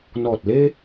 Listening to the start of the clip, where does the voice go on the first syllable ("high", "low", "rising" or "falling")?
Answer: low